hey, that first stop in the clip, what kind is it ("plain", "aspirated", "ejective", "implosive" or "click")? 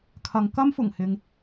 aspirated